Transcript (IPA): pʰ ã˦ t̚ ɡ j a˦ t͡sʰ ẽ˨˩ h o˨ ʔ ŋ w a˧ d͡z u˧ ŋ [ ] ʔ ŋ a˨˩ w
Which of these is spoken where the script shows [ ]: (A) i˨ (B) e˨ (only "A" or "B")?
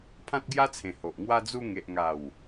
B